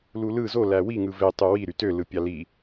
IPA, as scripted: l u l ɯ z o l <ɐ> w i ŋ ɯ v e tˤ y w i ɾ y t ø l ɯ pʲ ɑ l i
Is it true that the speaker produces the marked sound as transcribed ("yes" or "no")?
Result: no